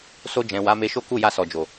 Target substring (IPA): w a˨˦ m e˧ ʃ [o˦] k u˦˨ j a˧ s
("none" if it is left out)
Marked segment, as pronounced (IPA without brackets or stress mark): o˦